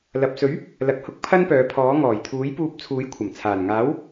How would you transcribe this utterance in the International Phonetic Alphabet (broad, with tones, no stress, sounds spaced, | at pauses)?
l ɐ˨ p̚ s ɵ˨˥ ɥ | l ɐ˧ k̚ h ʊ˥ k̚ pʰ ɐ˥ n p œː˨˧ pʰ ɔː˨˥ ŋ ɔː˨˩ j t̪ʰ uː˨˥ j p uː˧ p̚ t͡sʰ uː˨˥ j kʷʰ ɐ˨˩ m t͡sʰ aː˨˩ n ŋ aː˨˥ w